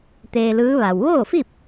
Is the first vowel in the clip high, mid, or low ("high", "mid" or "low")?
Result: mid